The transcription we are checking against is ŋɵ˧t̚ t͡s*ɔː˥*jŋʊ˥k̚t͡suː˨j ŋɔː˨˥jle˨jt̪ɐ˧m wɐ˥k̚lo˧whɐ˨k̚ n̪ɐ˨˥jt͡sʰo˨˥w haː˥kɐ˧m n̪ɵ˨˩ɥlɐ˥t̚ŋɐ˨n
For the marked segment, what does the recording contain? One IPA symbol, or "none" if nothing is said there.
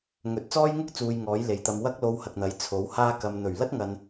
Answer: ɔː˥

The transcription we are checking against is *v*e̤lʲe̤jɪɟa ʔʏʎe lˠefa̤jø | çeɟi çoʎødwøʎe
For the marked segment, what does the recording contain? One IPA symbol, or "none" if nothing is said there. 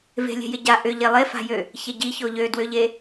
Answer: v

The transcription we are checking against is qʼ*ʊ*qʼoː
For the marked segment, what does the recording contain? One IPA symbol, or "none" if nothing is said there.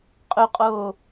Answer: ɵ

